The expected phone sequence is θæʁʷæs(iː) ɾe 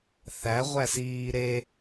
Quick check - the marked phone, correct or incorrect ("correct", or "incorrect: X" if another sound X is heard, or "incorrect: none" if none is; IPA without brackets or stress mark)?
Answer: correct